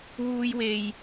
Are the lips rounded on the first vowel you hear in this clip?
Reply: yes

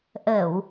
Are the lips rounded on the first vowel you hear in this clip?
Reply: no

